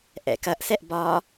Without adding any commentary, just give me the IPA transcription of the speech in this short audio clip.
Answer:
ʔɛ̰kɐʔsɛʔ bɒ

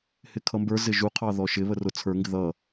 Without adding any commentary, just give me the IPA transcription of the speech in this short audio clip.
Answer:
hɪkʰʌmbə˞zɪ ʒuqʰɑ ðɔʃɪβə rʊ t͡sʰə˞ŋɡɪ ðʌ

